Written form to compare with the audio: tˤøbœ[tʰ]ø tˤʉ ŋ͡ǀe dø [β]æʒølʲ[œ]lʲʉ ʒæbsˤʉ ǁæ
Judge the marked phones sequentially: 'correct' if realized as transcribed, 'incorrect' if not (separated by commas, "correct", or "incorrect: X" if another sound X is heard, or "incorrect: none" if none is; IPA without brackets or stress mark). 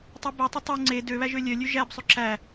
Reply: incorrect: tˤ, correct, correct